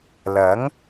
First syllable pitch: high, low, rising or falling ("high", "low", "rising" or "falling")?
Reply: rising